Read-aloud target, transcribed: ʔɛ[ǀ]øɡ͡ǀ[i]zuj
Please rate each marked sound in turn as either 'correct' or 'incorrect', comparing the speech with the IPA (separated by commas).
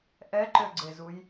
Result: incorrect, incorrect